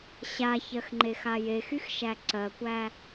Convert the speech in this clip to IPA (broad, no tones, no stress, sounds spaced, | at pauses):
ɕ a ç ɜ x ŋ͡ǃ e x a j e x y x ʃ æ ǀ ɜ kʷ æ